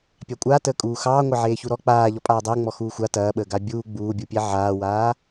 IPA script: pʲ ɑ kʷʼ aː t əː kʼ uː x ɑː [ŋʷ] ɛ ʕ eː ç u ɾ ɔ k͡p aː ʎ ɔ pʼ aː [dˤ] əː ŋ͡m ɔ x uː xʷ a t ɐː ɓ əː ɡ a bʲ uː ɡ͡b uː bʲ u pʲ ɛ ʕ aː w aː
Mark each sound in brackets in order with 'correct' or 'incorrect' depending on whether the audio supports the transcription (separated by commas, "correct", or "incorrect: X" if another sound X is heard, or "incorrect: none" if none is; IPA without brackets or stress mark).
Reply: correct, correct